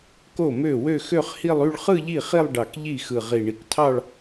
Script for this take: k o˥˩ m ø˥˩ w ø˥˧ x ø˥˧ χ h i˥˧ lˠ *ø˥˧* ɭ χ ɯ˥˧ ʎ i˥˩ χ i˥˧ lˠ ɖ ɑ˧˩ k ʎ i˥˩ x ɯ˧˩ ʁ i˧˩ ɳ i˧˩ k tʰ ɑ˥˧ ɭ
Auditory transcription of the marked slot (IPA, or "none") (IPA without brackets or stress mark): y˥˧